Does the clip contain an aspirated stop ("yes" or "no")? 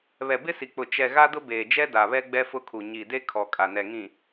yes